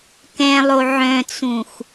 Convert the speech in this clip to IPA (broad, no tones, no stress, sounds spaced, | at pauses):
k ɛ̃ lˠ o ʕ œ̃ t͡s ũ x